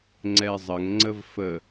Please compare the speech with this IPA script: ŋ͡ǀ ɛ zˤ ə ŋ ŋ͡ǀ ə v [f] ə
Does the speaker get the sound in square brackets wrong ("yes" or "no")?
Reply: no